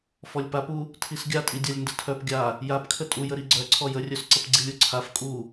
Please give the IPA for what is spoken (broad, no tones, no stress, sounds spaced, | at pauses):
f ɔ lʲ p a p u | tʰ i s ɡʲ a tʼ i dʲ a lʲ n d ə tʰ œ p ɡʲ a | j a p kʰ ə tʼ u j ə ɾ i ɡ͡ǀ œ ǀʰ ɔ j ə rʲ œ s ǀ ə p ɡ͡ǀ i lʲ u ǀʰ a f kʼ u